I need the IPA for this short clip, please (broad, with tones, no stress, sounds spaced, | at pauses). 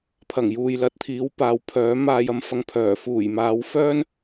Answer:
pʰ ɐ˨˩ ŋ j uː˨ j l ɐ˨˥ t̚ t̪ʰ iː˨˥ w p aː˨ w pʰ œː˨˥ m aː˨ j ɐ˨˥ m f ɐ˨ ŋ pʰ œː˨˩ f uː˨˩ j m aː˨˧ w f œː˥ n